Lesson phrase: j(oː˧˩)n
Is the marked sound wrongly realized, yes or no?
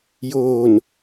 no